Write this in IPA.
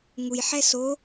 ŋ u j ħ ɛ s o

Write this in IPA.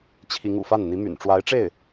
t͡ɕʰ i˧˥ ŋ ṵ˨˩ f a˥˩ n n̪ i˧˥ m y̰˨˩ n ʈ͡ʂ w a˧˥ ɪ̯ ʈ͡ʂ e˥˩ ɪ̯

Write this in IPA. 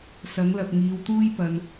s ɐ˨˥ ŋ l ɐ˨ p̚ ŋ iː˨˧ w t̪ uː˥ j p ɐ˨ n

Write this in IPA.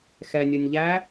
x ɛ nʲ ə˞ nʲ ʎ æ

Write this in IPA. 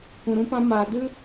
k ũ˧ ɾ ũ˦ p ã˦ m aː˧ d ɨ˦

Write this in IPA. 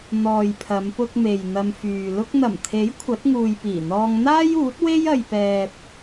n̪ ɔː˨ j pʰ ɐ˨˧ m p ʊ˧ k̚ m e˨ j n̪ ɐ˧ m f yː˨ l ʊ˧ k̚ n̪ ɐ˨˩ m t̪ʰ e˨˥ j kʷʰ ɐ˨˥ t̚ ŋ uː˨ j p iː˨˩ n̪ ɔː˧ ŋ n̪ aː˥ j uː˨˥ t̚ w e˥ j ɐ˨ j p ɛː˨ p̚

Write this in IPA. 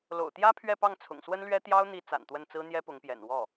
l o̰˨˩ ʊ̯ t̪ j ä˥ pʰ ɥ ɛ˥˧ p ɑ˥˩ ŋ t͡sʰ ʊ̰˨˩ ŋ s w ə˥ n l ɥ ɛ˥ t̪ j ɑ˥ ʊ̯ n̪ i˧˥ t͡s a̰˨˩ n t̪ w ə˥˩ n t͡s ɹ̩˥ n̪ j ɛ˥ p ʊ˧˥ ŋ p j ɛ̰˨˩ n w ɔ˥˩

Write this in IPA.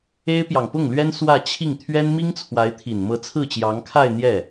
e˥ ɪ̯ p j ɑ˨ ŋ p ʊ˥˩ ŋ l ɥ ɛ˥ n s w ä˥˧ t͡ɕʰ i˥˩ ŋ t̪ʰ ɥ ɛ˥ n m i˥ ŋ t͡sʰ w a˧˥ ɪ̯ t̪ʰ i˨˩ n m ɤ˧˥ t͡sʰ ɹ̩˥˩ t͡ɕ j ɑ˧˥ ŋ kʰ a˥˧ ɪ̯ n̪ j ɛ˥˩

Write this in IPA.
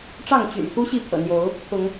ʈ͡ʂ ɑ˥˨ ŋ t͡ɕ y̰˨˩ n x u˦ ɕ i˥˨ pʰ ɤ̰˨˩ n̪ j o˨˦ ʊ̯ | pʰ ʊ˨˦ ŋ

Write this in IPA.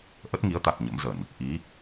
ʔ ə˦˥ t̚ ŋ i˨˦ ə̯ t̪ a˨˩ t̚ ɲ ə̰˧˥ m z ə˧˩˨ n | ʔ i˨˦

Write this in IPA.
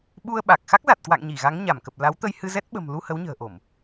ɓ u˧ ə̯ ɓ a˨˩ k̚ x a˦˥ k̚ z a˨˩ t̚ k w a̰˧˨ ŋ ɲ i˧˩ ɣ a˨˦ ŋ ɲ a˧˩ m k ə˨˩ p̚ l a˨˦ w t̪ ə˧ j h ɨ˧ z ɛ˦˥ t̚ ɓ ə̤˨˩ m l u˧ h ə˨˦ w ɲ ə̤ː˨˩ ʔ o˧˩˨ m

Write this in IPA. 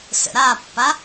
s ə̰ ɾ a pː a

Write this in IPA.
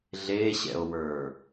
ɮ e ɕ ɛ̰ o̯ w ə˞

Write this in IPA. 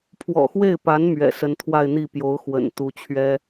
pʰ w ɔ̰˨˩ x w e˥˩ ɪ̯ p a˧˥ n m ɥ ɛ̰˨˩ s ə˧˥ n t̪ʰ w a˥˧ ɪ̯ n̪ i˥˩ p j o˧˥ ʊ̯ x w ə̰˨˩ n t̪ u˧˥ t͡ɕʰ ɥ ɛ˥

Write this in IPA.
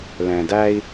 l ɛ̃˨ d æ˦ i̯

